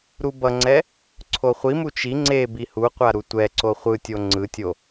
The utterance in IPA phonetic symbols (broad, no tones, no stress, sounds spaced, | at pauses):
ɾ u b ʌ ŋ͡ǀ ɛ | ǀʰ o χʷ i m u t͡ʃ i ŋ͡ǀ e b i h u qʷ a ɾ u tʷ ɛ ǀ o χʷ ɯ tʲ o ŋ͡ǀ ɯ tʲ o